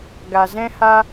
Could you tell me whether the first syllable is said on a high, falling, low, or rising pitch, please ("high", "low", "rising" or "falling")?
low